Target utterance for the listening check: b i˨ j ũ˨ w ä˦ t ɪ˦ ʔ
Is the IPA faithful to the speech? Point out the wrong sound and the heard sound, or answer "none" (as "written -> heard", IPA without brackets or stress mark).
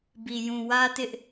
none